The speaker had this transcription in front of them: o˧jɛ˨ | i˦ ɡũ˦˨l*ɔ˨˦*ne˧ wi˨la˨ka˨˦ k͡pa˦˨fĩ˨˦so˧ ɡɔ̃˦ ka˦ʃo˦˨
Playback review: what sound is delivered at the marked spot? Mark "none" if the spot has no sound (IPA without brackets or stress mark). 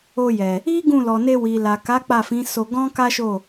ɔ˨